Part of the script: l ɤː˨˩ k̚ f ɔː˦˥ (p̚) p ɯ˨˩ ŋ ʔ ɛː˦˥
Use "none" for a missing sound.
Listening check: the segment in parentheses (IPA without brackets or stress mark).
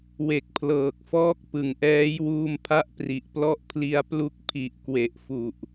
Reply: k̚